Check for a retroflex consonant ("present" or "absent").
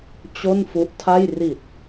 absent